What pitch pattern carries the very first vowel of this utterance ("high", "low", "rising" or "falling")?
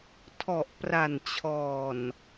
low